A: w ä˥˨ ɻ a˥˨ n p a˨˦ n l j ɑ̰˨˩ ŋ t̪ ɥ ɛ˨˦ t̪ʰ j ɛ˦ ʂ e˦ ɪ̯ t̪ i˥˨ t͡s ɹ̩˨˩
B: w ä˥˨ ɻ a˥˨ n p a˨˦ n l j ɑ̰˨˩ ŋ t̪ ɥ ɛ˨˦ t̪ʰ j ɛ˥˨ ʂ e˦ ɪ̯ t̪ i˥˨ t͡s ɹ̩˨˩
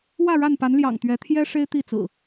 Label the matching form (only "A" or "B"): A